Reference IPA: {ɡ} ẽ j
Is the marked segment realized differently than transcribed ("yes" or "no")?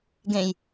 no